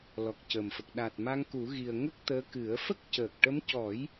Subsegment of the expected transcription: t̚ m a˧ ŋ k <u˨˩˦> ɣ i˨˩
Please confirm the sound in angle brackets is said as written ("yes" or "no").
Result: yes